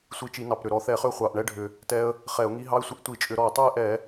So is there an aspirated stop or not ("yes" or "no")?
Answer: no